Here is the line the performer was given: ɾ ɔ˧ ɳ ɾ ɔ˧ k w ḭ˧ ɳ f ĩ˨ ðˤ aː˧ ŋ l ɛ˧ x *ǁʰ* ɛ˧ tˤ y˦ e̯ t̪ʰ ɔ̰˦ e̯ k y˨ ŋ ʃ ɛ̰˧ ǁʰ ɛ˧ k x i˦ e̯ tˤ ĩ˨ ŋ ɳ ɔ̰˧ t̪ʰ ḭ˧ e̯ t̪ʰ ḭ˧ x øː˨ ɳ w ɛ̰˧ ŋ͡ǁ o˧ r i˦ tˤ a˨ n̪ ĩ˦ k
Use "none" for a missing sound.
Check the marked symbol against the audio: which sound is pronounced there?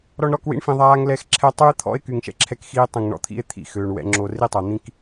ǁʰ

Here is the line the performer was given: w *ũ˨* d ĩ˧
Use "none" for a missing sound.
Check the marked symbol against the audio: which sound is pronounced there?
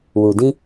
u˨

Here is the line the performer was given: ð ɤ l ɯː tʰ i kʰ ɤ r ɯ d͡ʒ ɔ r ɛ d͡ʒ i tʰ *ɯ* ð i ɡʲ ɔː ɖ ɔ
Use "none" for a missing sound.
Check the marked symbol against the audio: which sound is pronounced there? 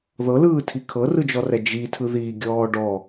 ɯ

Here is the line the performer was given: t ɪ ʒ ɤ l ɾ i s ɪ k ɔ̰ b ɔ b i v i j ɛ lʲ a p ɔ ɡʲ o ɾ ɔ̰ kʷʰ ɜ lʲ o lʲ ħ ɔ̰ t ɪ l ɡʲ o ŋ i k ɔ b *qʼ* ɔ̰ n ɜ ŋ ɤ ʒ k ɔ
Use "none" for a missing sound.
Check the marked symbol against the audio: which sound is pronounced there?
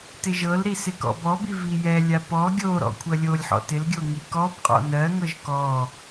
qʼ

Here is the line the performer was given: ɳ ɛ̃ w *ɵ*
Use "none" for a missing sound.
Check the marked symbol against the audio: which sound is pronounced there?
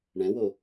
o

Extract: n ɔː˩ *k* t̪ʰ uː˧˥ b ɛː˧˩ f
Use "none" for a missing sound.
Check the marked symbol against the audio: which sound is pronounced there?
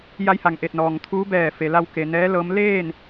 ŋ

